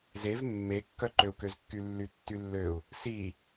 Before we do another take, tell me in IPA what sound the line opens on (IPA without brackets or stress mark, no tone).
z